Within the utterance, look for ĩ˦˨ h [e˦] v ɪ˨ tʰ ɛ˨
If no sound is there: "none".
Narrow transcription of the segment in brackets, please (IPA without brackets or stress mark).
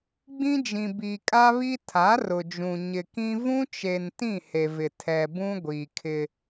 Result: e˨